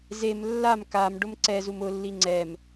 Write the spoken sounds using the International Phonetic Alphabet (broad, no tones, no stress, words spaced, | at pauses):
zem lːam kam ɖʊmǀɛzum ʊlːi ŋ͡ǀɛm